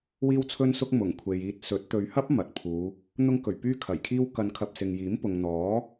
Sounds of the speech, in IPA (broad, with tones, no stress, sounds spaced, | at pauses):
w iː˥ w t͡sʰ ɵ˥ n s ʊ˥ k̚ m ʊ˨˩ ŋ kʷʰ e˨ j iː˧ t̚ s ɵ˨˥ t̚ t̪ ɵ˨ ɥ h ɐ˥ p̚ m ɐ˨ t̚ pʰ uː˨˧ | n̪ ʊ˧ ŋ k ɵ˨˩ ɥ p yː˥ kʰ ɐ˨˩ j kʰ iː˥ w k ɐ˧ n kʰ ɐ˧ p̚ s ɪ˨ ŋ j iː˨˥ m p ʊ˨ ŋ n̪ ɔː˨˥